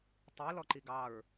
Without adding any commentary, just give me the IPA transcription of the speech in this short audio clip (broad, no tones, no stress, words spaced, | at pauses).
tˤilɔǃi ɡɑɹ